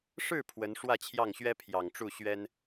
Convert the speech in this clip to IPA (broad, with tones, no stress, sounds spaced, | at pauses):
ʂ ɻ̩˥˩ pʰ w ə˧˥ n ʂ w ä˥˧ t͡ɕʰ j ɑ˥˩ ŋ ɕ ɥ ɛ˥ pʰ j ɑ˨˩ ŋ ʈ͡ʂ u˥˩ ɕ ɥ ɛ˥ n